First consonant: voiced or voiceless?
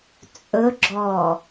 voiceless